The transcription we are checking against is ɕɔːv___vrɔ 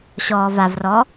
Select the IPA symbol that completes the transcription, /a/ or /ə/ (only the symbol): a